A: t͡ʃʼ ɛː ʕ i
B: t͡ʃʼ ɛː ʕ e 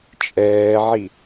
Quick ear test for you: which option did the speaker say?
A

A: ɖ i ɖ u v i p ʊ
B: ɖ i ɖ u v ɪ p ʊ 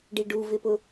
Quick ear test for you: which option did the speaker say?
B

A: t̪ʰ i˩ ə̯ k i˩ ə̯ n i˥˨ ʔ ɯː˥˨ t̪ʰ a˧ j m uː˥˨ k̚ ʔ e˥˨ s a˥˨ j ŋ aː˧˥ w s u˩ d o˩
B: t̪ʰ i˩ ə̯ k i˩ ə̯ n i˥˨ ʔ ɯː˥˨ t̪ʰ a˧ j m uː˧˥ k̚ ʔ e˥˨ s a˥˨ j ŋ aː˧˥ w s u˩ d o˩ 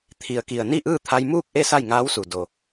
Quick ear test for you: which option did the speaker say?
A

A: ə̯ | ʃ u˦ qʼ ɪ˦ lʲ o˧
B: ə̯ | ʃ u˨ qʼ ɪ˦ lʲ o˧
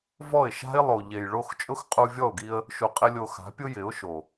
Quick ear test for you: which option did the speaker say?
B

